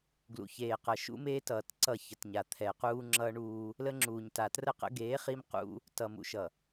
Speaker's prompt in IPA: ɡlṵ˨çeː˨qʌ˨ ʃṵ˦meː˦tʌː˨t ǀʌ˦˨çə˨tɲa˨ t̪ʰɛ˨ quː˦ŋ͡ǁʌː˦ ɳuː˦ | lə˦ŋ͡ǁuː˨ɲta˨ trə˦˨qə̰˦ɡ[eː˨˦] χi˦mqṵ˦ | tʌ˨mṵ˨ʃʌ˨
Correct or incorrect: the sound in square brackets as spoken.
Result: correct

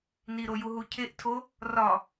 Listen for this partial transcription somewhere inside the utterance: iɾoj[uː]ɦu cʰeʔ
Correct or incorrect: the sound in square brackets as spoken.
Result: incorrect: u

